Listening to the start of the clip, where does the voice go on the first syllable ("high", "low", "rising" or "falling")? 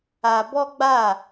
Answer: high